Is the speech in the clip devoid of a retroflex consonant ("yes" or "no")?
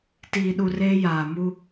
yes